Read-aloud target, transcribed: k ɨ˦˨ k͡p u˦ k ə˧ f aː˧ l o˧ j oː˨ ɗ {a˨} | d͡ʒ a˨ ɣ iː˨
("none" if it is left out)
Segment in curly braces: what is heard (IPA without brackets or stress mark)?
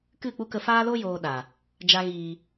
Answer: a˨